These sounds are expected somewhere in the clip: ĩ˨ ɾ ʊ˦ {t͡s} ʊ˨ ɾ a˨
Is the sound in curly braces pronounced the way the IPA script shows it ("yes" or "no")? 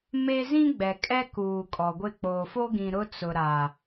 yes